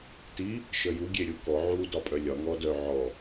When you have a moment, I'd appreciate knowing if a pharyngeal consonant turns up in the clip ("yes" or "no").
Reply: yes